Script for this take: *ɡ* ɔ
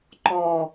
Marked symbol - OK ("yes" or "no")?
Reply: no